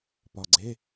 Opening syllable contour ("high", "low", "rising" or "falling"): low